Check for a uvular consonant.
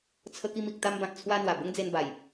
absent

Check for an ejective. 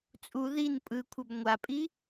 present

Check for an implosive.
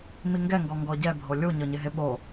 present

